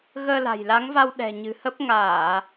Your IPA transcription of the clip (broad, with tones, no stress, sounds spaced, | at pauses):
ɣ əː˧ l a̤˨˩ j l a˨˦ ŋ v a˧ w ɗ ɛ̤˨˩ ɲ ɨ̤˨˩ h ə˦˥ p̚ ŋ aː˧˩˨